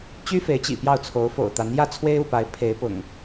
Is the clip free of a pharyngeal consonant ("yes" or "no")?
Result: yes